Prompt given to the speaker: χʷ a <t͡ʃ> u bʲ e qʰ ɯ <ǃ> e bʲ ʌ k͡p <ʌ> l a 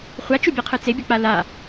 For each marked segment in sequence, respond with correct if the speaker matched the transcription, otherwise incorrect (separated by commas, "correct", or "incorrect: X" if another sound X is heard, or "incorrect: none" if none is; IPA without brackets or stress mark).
correct, incorrect: t͡s, incorrect: a